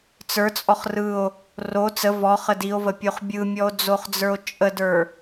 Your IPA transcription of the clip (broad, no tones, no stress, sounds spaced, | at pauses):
t͡s ə˞ t͡sʼ ɔ χ r ɯ o̯ | r o t͡s ə v ɔ χ ə d i o̯ v ə pʲ o χ bʲ ɯ mʲ ɔ o̯ d͡z o χ d͡z ə˞ o̯ t͡ʃʼ ə d ə˞